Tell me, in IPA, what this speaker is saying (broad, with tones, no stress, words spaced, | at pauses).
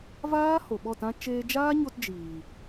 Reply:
vaː˦ ho˨ɓɔ˦˨tã˦ t͡ʃeː˧d͡ʒaː˦ɲo˧t d͡ʒiː˨